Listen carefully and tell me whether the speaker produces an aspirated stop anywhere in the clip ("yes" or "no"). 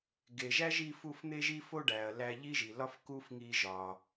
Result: no